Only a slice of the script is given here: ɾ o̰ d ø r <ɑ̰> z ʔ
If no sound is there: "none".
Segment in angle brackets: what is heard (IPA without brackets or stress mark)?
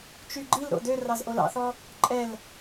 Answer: ɑ